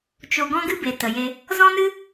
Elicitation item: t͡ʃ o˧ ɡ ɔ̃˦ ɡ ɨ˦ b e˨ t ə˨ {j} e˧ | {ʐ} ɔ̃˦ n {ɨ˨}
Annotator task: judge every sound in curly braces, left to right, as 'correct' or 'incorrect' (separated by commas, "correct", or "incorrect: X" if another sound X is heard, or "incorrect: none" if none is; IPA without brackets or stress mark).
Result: correct, incorrect: z, incorrect: ɨ˦